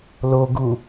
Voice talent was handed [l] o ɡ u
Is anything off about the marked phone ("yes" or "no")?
no